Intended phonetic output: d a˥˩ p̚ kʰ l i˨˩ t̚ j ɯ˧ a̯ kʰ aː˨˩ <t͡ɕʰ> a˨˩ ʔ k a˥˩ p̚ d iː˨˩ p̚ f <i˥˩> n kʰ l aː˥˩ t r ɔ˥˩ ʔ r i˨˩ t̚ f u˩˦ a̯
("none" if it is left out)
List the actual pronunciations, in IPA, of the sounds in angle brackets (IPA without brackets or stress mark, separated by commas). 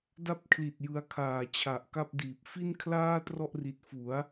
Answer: t͡ɕʰ, i˥˩